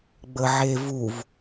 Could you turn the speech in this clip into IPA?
ɡ͡bəʕevuv

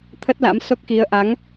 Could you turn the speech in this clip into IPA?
t̪ʰə˦˥t̚la̰˧˥mso˦˥k̚xi˨˦ə̯ ʔa˨˦ŋ

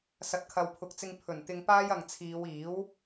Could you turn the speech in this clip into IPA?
sɐ˨t̚kʰɐ˨wpʰʊ˨k̚t͡sɪ˧ŋ pʰɵ˨˩nt̪ɪ˧ŋ paː˥jɐ˨ŋt͡sʰiː˨˧w iː˨˥w

